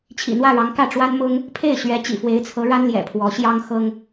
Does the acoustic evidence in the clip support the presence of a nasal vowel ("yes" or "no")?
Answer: no